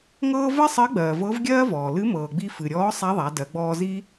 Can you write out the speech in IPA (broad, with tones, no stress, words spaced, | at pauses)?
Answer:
ŋɤː˥ vɜ˥sˤɜ˧˥ɡ͡bɜː˩ vɤ˧˥vɡʲɜː˥vɔː˩ lɨ˧˥mɤː˩ɡ͡bi˧ fɨ˩ɾʲɔː˧˥ sˤa˧˥ðˤa˩˧dɜ˩˧ɡ͡bɔː˧ zi˥